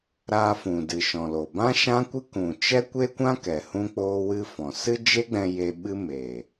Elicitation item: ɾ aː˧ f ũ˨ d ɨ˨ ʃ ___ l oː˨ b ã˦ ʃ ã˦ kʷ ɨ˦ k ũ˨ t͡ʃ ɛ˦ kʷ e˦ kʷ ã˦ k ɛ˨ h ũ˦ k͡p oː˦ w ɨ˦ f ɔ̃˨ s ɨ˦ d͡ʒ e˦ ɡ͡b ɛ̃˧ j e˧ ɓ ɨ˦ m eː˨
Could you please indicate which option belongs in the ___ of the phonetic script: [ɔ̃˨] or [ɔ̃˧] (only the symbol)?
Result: ɔ̃˨